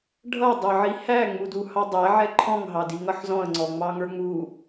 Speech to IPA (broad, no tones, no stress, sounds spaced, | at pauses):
ɖʱ ʌ dˤ ʌ ʕ i h æ ŋ͡m u d u h ɑ dˤ æ ʕ ɛ ǃʰ ɔ̃ ŋ ɦ ɑ d i ŋ ʌ ħ z ɔ̃ ə̯ ŋ͡ǀ ɔ ŋ͡m ɑ ŋ ə˞ ŋ͡m u